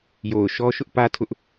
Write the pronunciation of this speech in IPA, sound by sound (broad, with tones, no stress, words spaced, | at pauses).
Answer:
jo˨ʊ̯ ʃɔ˦ ʃʊ˦ʔpä˦tʰʊ˦ʔ